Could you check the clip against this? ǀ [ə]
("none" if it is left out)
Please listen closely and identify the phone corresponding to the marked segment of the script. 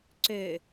ø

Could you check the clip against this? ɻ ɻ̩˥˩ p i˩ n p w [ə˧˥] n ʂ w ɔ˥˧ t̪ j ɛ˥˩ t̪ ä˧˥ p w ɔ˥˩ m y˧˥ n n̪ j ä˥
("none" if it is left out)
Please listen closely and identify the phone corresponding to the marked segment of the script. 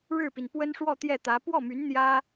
ə˥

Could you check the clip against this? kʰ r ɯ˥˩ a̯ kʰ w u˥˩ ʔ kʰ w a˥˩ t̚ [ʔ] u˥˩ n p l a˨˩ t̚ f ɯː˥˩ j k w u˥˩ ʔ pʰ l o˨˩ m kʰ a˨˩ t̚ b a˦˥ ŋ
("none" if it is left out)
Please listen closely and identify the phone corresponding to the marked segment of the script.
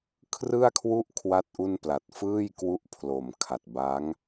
ʔ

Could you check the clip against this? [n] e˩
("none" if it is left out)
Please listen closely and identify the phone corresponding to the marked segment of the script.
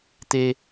t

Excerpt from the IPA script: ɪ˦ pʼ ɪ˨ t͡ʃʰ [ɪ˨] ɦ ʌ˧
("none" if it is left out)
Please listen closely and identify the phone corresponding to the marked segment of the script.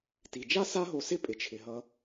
ɪ˨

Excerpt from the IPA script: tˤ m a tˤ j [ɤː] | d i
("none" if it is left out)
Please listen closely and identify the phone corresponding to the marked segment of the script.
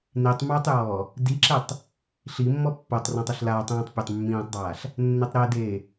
ɔː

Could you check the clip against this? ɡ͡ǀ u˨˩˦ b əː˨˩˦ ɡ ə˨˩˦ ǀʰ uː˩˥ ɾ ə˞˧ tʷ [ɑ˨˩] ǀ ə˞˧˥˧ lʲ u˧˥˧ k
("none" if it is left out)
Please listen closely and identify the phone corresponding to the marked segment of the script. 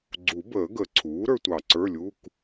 ɑ˨˩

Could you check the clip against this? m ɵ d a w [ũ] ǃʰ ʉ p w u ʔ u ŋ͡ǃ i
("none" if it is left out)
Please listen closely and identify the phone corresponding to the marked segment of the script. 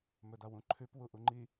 ũ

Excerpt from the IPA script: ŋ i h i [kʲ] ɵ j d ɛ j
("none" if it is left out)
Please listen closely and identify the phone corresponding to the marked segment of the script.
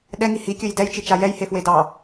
kʲ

